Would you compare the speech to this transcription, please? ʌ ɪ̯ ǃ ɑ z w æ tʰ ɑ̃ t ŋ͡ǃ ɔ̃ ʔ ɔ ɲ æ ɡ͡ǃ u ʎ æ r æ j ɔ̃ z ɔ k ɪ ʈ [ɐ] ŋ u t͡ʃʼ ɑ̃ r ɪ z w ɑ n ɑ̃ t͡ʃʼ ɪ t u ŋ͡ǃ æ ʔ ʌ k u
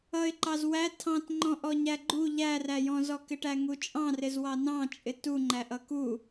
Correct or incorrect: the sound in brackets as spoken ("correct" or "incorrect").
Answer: incorrect